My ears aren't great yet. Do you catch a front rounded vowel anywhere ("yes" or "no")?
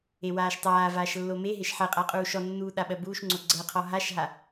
no